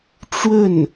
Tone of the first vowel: falling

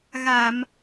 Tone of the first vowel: low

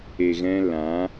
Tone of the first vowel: low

